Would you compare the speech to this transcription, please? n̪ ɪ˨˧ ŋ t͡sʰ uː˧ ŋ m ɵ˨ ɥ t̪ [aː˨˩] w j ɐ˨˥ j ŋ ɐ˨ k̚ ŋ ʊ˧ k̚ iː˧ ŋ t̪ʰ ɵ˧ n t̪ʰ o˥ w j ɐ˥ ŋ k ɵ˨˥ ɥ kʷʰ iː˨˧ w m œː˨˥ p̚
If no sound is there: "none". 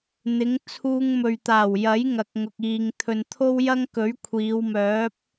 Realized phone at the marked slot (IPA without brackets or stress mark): aː˨˩